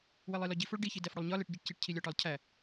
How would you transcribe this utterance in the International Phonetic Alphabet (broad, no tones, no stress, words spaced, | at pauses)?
welˠilɒɟi foɭɖi çidæfɽulˠɲɒ leʈɟiʈciʈ cʰilʲɒʈɒlˠcʰæ